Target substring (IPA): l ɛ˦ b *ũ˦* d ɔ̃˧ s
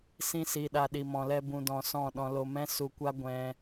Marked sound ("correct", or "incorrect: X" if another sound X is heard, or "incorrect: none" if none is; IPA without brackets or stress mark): incorrect: ũ˧